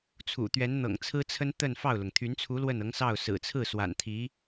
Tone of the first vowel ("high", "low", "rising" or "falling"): low